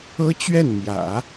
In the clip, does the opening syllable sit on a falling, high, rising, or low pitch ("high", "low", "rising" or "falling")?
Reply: high